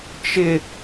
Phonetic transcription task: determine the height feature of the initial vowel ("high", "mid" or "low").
high